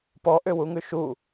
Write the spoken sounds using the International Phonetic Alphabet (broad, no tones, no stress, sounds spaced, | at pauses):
p ɔ ʔ ʏ w u ŋ ʉ ʃ u